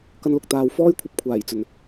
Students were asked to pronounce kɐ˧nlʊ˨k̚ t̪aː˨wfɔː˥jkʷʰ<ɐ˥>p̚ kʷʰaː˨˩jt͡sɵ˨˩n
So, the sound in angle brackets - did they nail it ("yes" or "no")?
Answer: no